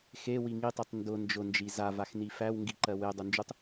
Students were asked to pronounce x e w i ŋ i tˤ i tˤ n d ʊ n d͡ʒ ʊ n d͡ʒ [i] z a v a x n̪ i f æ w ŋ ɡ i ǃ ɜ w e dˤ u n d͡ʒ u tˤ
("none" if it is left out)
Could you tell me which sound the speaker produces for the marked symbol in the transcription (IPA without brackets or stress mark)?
i